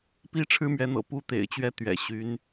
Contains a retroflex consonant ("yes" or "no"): yes